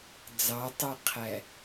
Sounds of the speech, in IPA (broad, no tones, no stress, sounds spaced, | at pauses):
d͡z ɑ tˤ ɛ qʰ æ